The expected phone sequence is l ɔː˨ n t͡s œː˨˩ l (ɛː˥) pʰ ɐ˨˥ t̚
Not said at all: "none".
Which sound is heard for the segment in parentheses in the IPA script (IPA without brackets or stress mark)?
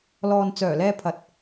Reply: ɛː˧